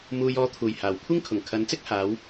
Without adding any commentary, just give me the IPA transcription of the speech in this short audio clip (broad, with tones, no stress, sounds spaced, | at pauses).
m uː˨ j ɔː˨ t̪ʰ uː˨˩ j h aː˨˩ w kʷʰ ɪ˥ ŋ kʰ ʊ˨˩ ŋ kʰ ɐ˨˧ n t͡s ɪ˥ k̚ h aː˨˧ w